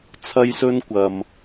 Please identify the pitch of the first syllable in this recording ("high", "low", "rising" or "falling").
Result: high